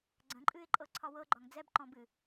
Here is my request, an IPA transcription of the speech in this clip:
ɡ͡ǀ ə̃ ǃʼ ɨ ɪ̯ ǃʼ ɤ ǀʰ ɒ w ɤ ɡ͡ǃ ɒ ŋ d͡z ɛ b ǃ ɔ̃ b ɨ

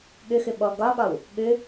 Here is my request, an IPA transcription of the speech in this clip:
ɠ ʏ x ʏ ɓ ɔ ɡ ɒ ɠ ɒ w | ɠ ʏ

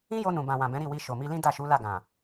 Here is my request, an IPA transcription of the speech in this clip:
ĩ˦ j o˧ n ũ˨ b ã˨ w ã˨ b ɛ̃˨˦ ɾ i˦˨ w i˧ ʃ o˨ m i˧ l ĩ˦ d a˦˨ ʃ u˨˦ l a˦˨ ɡ ã˨

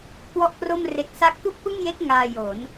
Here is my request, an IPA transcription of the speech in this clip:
k w ɔ˥˩ ʔ k r o˥˩ m r e˦˥ k̚ s a˦˥ k̚ t u˥˩ k̚ p ɯ˥˩ ŋ j e˦˥ k̚ ŋ aː˧ j o˩˦ n

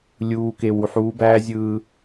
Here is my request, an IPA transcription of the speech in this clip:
lʲ uː˨ k e˨ w u˨ ħ uː˨˦ b æː˦ zʲ ɯː˦

